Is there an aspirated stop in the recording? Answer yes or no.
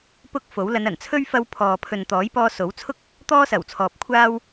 yes